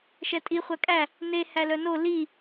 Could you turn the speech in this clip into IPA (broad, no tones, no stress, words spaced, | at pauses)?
ʃɛtʼi χʷækʼæ | ne hælœno li